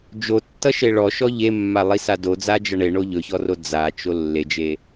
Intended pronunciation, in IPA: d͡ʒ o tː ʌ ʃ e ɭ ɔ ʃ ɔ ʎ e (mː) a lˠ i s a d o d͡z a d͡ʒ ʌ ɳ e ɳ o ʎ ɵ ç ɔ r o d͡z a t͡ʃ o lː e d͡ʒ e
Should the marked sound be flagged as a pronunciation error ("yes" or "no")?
no